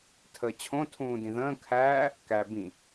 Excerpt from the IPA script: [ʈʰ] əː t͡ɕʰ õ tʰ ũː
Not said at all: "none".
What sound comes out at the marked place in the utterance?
tʰ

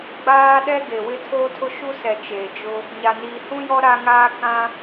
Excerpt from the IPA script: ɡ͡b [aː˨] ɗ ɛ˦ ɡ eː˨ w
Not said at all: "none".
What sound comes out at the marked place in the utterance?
aː˦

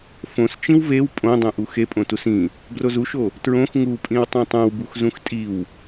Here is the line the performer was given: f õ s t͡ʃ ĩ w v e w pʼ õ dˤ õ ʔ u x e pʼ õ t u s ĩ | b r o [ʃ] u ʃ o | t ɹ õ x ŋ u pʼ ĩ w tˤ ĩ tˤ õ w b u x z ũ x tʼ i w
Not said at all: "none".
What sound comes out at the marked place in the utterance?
z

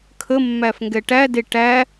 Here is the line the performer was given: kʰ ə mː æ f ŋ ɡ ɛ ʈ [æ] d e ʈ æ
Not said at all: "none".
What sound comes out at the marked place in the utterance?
æ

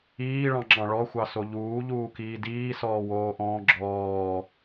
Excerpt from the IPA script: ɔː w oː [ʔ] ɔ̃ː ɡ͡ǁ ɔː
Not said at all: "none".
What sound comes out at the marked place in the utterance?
ʔ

